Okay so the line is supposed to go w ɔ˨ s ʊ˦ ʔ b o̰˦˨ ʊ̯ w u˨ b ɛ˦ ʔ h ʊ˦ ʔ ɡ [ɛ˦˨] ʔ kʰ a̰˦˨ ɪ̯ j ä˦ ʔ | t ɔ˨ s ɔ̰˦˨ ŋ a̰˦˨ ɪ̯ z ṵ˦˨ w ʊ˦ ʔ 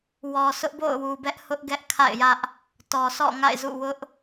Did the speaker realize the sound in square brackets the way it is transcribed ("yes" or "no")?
no